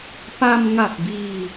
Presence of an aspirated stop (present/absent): absent